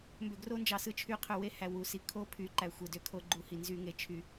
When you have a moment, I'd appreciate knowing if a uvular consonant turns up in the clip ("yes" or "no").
yes